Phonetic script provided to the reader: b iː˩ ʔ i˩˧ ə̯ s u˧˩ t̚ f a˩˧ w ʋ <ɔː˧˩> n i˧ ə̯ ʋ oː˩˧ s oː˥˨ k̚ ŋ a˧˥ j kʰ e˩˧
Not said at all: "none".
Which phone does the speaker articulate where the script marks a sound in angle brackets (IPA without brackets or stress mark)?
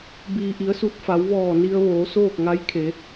ɔː˧˩